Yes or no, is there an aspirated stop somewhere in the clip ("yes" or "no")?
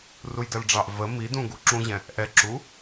no